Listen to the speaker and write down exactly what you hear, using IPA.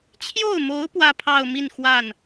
t͡ɕʰ j o˥˩ ʊ̯ m o˧˥ ʊ̯ p w ä˥˧ pʰ ɑ˥˧ ʊ̯ m i˥˧ n x w a˥˩ n

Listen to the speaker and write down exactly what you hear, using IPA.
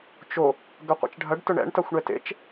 t͡ʃ o | ɡ ɐ qʷ ḛ t͡ʃ ɖʱ ɐ ɖ t ʊ ɳ ɛ̰ ɳ t a xʷ ɳ ɛ t ḛ t͡ʃ

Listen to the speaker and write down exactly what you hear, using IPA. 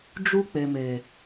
d͡ʒ u˦ k͡p e˨ m eː˨

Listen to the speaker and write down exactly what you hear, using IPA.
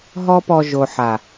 ɦ ɔ˦ p ɔ˧ ʒ o˨ ħ a˨

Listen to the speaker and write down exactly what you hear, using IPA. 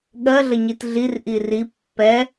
ɠ ɜ ɮ ə ɲ i t ɮ i r ʔ i r i pː ɛ

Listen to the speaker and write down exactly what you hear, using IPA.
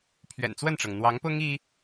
pʰ ɥ ɛ̰˨˩ n t͡s w ə˥˩ n ʈ͡ʂ ɤ˩ ŋ n̪ w ɑ˧˥ ŋ p ʊ˥ ŋ i˥

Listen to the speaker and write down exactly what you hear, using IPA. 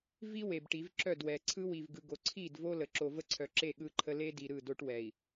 v i˦ w e˨ b ʈ i˨˦ v ǁ œ˦˨ d w ɛ˨ ǀʰ ɯ˦ w i˨ v ɡ ɯ˨ ɡ o˨ ǀʰ i˦˨ d v o˦ l ə˨ ǁ o˨ v ə˦ ǀʰ œ˨ ǁ e˦˨ ɠ ɯ˦ ǃʰ ə˦ l e˦ d i˨ ɾ ɯ˦˨ d o˦ ʈ w ɛ˨ i̯

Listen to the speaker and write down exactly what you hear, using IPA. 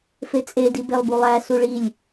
f e t͡sʼ e d i b e lˠ b u lˠ æ s u ɭ i lʲ

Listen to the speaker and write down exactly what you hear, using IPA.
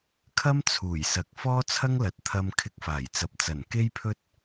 kʰ ɐ˥ m t͡sʰ uː˨˩ j s ɐ˨ k̚ f ɔː˥ t͡sʰ ɐ˥ ŋ l ɐ˨˥ t̚ t̪ʰ ɐ˧ m kʰ ɪ˧ k̚ f aː˨˩ j t͡s ɐ˨ p̚ t͡s ɐ˨˩ n k e˥ j pʰ ɵ˥ t̚

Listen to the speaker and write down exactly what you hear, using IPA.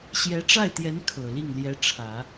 ɕ j ɛ˧˥ ʈ͡ʂ a˥˩ ɪ̯ t̪ j ɛ˧˥ n kʰ ɤ˨˩ l i˥˩ ŋ l j ɛ˧˥ ʈ͡ʂʰ ä˨˩˦

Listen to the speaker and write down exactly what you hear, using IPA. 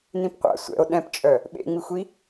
n ĩ p qʷ a̰ sʷ ɛ̰ o̯ ɗ ɛ̃ p t͡ʃʼ œ | ɓ ḛ ŋ͡m i xʷ i

